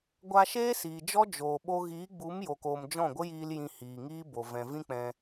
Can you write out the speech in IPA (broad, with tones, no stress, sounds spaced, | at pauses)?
ɡʷ a˧ ʃ eː˦ s iː˨ d͡ʒ ɔ˦ d͡ʒ oː˨ ɓ o˧ ɣ iː˨˦ ɡ͡b u˨˦ m j o˨ k oː˨ m d͡ʒ ɔ̃˦˨ ɡʷ ə˦ j iː˧ l j ĩ˧ h iː˨ ŋ iː˦ b o˨ v ɛ̃˨ v ĩ˦ k͡p ɛ̃˧